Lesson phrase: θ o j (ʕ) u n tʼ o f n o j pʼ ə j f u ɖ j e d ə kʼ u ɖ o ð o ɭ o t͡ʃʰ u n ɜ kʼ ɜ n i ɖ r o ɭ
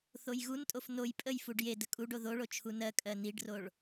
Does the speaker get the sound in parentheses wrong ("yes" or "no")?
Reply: yes